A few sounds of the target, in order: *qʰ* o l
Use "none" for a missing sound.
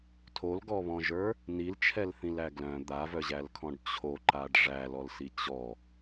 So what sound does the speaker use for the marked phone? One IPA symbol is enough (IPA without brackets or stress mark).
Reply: tʰ